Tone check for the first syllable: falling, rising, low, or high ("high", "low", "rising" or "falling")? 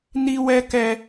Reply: high